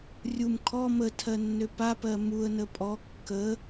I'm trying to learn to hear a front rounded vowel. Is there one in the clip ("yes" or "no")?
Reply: yes